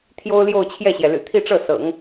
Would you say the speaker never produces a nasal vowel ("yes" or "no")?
yes